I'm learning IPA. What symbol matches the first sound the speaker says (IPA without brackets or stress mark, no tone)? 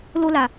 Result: l